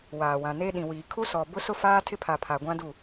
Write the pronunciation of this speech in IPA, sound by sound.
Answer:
w aː˨ w ã˨ n e˦ ɗ ĩ˨ w iː˨ kʰ u˦ s ɔ˨ b ʊ˦ s ʊ˦ f aː˦ tʰ ɪ˦ pʰ a˨ pʰ a˨ ɡʷ ã˦ d u˦˨

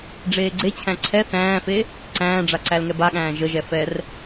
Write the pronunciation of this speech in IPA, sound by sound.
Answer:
ɖ͡ʐ eː ɡ͡ǀ e t͡ɕʰ æ̃ ǀʰ ɛ θ æ̃ː f e | ǀ æ̃ː ɖ͡ʐ a ǀ æ l ŋ ɛ b a ɠ æ̃ː ʒ ə ʒ ɛ f ɛ r

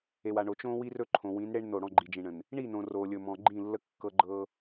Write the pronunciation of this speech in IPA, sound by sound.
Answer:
e˨ w a˨ ɳ o˨ t͡ʃ õ˦ w i˦ r ɵ˦ ǃʰ õ˨ w ĩ˨˦ n ɽ e˦ ɳ n o˦˨ ɽ ɔ̃˦˨ ɡ͡ǃ i˨ d͡ʒ ĩ˨ ɳ ə̃˨ n | ɳ i˦˨ n õ˨ r o˨ lʲ ɵ˨ m ɔ̃˨ ɡ͡ǃ ĩ˦˨ lː ə˦ kː ɤ˦ ɡ͡ǃ ɤ˦

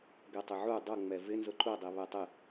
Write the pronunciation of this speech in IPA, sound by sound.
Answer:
ɡ ɛ tˤ ɪ ʕ u dˤ ʊ ŋ͡m ɛ v ɪ n z ʊ ǃ u dˤ i β ɛ tˤ ɪ

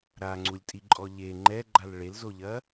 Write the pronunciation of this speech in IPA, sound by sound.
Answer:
ɾ a ŋ͡ǀ u lʲ tʼ i ǃʼ ɔ ʎ e ŋ͡ǃ ɛ ɡ͡ǃ a l ɭ e l z o ʎ ɐ

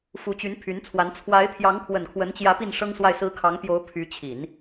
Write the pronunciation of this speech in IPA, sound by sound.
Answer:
f u˧˥ t͡ɕ y˧˥ n pʰ y˧˥ n t͡sʰ w a˧˥ n t͡sʰ w a˧˥ ɪ̯ pʰ j ɑ˧˥ ŋ kʰ w ə˨˩ n kʰ w ə˧˥ n t͡ɕ j ä˧˥ p i˥˩ n ʂ ɤ˥ ŋ s w a˥˩ ɪ̯ s ɹ̩˥ kʰ ɑ˧˥ ŋ p j o˧˥ ʊ̯ pʰ y˧˥ t͡ɕʰ i˨˩˦ n

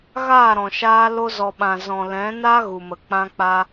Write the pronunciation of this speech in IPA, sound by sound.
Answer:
ɣ aː˦˨ ɾ ɔ̃˨ ʃ aː˧ l o˧ z ɔ˨ ɓ ã˨ z ɔ̃˨ l ɛ̃˨˦ n a˦ ɣ u˨ m ə˨ k͡p ã˧ k͡p a˧

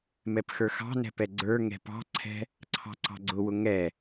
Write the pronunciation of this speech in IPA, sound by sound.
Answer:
m ɛ p x ə˞ x ɑ̤ n ɛ̤ p ɛ ɡ͡ǀ ə˞ ŋ ɛ̤ p ɑ̤ ǀʰ ɛ̤ | ǀʰ ɑ̤ ǀ ɑ̤ ɡ͡ǀ ʊ w ʊ ŋ ɛ

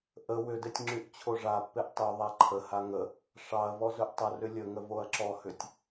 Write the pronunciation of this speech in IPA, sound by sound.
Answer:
ʔ ə w ʏ d e tʲ ŋ͡ǁ y ʔ t͡ɕʰ o ʐ a pː e ʔ tˤ y ðˤ a ǃʰ ə h a ŋ ə | ʂ ɑ ɐ̯ v ɔ z ɵ ʔ tˤ ə r ʏ lʲ ə ŋ ə v o ɐ̯ ǁ ɔ h ʏ tʲ

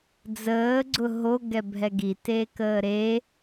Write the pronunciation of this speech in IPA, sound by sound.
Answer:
d͡z əː ɡ͡ǀ ʊ ɦ o ɡ ɛ bʱ ɛ ɡ i t e k əː ɾ e

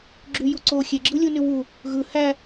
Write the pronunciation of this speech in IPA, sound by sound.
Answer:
ɡ͡ǁ y j u ǀ o xʲ e ɡ͡ǁ ɯ lʲ u n y w u | ɣ ɯ h æ

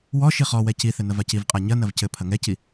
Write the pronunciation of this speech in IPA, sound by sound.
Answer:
w ɔ ʃ i χ ɔ w ɛ c i θ ɘ n ɐ v a c i v qʼ a ɲ ɐ n ɐ v c ɘ pʰ ɐ ŋ ɛ c i

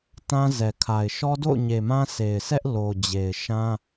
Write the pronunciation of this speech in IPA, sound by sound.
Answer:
t ã˦ z ɛ˨ kʰ a˨ ɪ̯ ʃ ɔ˦ d o̰˦˨ ʊ̯ ɲ e˨ m ã˦ s e˨ ɪ̯ s ɛ˦ ʔ l o˨ d͡ʑ e˨ ɪ̯ ʃ ã˦

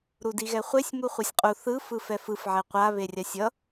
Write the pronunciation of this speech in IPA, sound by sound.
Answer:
ɾ u d i ɣ ɛ χʷ e sʲ m u χʷ e sʲ qʼ u θ ɯ f ɯ f ɛ f ɯ f ʕ ɛ qʷ a β e rʲ a sʲ ʌ

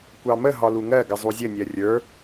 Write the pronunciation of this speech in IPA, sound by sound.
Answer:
kʷ ɑ m ə ɦ ɒ l u ŋ ɜ ɡ ə zˤ u zʲ ə nʲ ɜ rʲ ə˞

